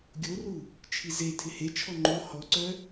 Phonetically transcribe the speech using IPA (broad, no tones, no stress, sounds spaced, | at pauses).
ɡʲ o r u | t͡ʃʰ i z e tʰ ɪ h e t͡ʃʰ ɔ ŋ͡ǃ o h ɔ ǀ œ